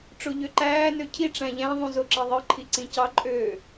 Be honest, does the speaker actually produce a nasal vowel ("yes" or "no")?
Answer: yes